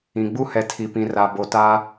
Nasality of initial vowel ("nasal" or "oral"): nasal